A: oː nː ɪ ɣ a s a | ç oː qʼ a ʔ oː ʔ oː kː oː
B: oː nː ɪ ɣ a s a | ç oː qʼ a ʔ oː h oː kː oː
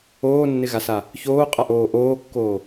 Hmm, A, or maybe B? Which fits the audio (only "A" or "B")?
A